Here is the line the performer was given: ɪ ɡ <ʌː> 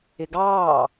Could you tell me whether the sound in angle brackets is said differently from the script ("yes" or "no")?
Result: yes